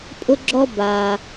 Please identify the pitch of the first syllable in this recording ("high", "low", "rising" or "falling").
high